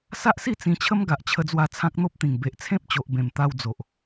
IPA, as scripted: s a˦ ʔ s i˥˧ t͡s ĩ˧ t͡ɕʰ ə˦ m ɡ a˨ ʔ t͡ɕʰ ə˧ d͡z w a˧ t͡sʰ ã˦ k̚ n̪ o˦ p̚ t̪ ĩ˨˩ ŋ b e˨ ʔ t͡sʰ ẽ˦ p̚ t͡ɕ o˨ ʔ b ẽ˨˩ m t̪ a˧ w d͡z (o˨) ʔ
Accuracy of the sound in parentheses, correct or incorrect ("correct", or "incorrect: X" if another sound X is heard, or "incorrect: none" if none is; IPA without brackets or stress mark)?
correct